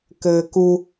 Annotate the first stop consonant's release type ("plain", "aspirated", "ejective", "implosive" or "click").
plain